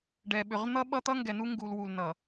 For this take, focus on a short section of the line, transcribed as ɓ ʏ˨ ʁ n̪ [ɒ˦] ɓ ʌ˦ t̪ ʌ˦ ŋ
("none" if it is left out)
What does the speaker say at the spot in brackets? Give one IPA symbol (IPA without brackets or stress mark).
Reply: ʌ˦